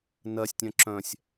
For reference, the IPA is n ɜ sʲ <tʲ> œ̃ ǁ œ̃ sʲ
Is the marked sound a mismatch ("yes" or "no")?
no